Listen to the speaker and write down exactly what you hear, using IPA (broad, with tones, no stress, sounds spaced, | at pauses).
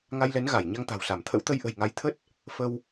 ŋ a˧ j l ɛ˨˦ n ɣ a˧˩ j ɲ a˧ ŋ t̪ a̤˨˩ w s a˧˩ m t̪ʰ ə̰˧˥ w t̪ ə˧ j ʔ ə̤˨˩ j ŋ a˨˦ j t̪ʰ ə˦˥ t̚ | f ə˧ w